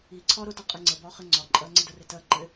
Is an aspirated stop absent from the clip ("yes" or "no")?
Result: no